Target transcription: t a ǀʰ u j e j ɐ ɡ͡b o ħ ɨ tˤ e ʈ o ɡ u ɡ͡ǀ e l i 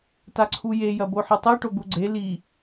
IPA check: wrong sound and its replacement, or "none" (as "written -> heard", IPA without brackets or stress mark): ɡ͡b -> b